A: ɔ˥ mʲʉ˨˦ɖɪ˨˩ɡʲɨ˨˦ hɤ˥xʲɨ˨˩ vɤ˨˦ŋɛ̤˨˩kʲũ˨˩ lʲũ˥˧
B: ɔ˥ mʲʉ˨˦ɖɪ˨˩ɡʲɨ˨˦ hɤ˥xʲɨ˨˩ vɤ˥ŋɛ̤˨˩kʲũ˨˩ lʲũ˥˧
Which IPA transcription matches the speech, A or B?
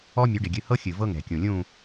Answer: B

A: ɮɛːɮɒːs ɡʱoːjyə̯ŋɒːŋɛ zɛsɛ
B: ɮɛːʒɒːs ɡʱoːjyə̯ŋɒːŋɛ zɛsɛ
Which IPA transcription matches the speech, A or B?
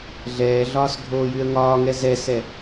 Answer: A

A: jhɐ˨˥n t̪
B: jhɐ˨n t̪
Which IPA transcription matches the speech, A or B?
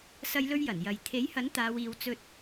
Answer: A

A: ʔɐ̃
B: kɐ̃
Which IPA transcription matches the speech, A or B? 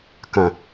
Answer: B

